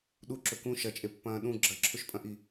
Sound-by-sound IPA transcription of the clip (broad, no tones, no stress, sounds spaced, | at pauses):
ɗ u ǁ ɵ k ũ ʃ ɐ t͡ʃʼ e pː ɐ̃ː ɗ ũ ɡ͡ǁ ɐ ǁʰ ɵ ʃ pʼ ɐ̃ ʔ i